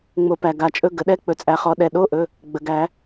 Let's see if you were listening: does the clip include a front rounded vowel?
no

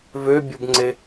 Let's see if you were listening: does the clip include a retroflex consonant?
no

